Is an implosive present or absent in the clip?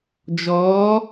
absent